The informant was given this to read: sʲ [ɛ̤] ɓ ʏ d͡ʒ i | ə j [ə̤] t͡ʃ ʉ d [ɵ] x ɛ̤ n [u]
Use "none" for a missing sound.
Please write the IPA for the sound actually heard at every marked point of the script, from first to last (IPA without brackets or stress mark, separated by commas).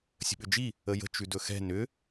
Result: ə̤, ə̤, ɵ, ʏ